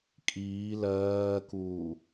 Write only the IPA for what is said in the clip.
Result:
kʼ iː l ɜː k uː

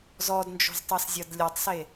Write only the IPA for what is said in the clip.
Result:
z ɔ d n d͡ʒ o̤ z tˤ i s zʲ ʌ d lʲ ʌ tˤ s e

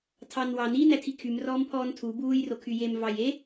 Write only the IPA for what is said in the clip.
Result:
tʰ ɑ n w ɑ n i n æ tʰ i kʰ y m r ɔː m pʰ ɔː n tʰ u b uː j r o kʰ y j e m v ɑ j e

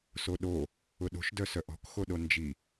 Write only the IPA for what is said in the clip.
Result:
s o ɗ o | ʊ ɗ o̤ ʃ d œ s œ ʔ ɔ̤ k x o ɗ o n d͡ʒ i

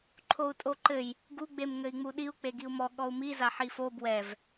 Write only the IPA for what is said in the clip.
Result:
ǃʰ o u̯ tʼ o ǃ ɘ j | ɡ u ɡ͡b e m ŋ ɘ i̯ ŋ͡m u ɗ i u̯ k͡p e ɡ i u̯ m ɔ ɠ ɔ u̯ m i z a ħ i f o b w ɛ v

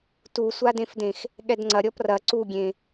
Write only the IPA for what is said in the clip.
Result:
t u sʷ a d ẽ f d ẽ x | ɠ ɛ d ŋ͡ǀ ɐ ɾʲ ɔ p r ɐ ǀ u ɡʲ ẽ

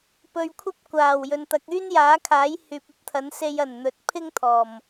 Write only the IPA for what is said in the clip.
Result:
p ɵ˨ ɥ kʷʰ ɐ˥ p̚ kʷ aː˨˩ w j ɵ˨ n t̪ ɐ˨˥ k̚ yː˥ n j aː˨˥ kʰ aː˨˥ j h yː˨ p̚ ɐ˥ p̚ t̪ʰ ɐ˨˥ n s e˧ j ɐ˨˩ n n̪ ɵ˨˥ t̚ pʰ ɪ˥ ŋ t̪ʰ ɔː˨˩ m

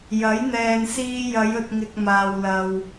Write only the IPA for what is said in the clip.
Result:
j ɐ˨˥ j n̪ ɛː˨ n s iː˧ j ɐ˨˧ j ɵ˨ t̚ ŋ ɪ˨ k̚ m aː˨ w l ɐ˨ w

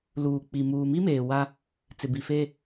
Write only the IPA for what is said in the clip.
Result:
l uː˨ k͡p i˨ m uː˨ m i˦ m eː˨ w a˦ | t͡s ɪ˨ b i˨ f e˦

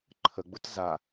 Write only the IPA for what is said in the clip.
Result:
ǃʰ ə ɡ͡b ʊ t z a

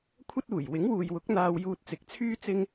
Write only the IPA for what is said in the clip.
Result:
kʷʰ ɐ˥ t̚ uː˨˩ j w ɪ˨˥ ŋ w uː˨ j w ʊ˨˥ k̚ n̪ aː˧ w j uː˧ t̚ t͡s ɪ˨˥ k̚ t͡sʰ yː˥ t͡s ɪ˧ ŋ

